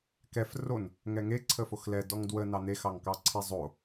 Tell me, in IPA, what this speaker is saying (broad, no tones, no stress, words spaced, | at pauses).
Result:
kɛf ron | ŋɛŋe ǀʰəfoxlɛ dɔŋdwə nɑne xɑŋkɑǀʰe zˤo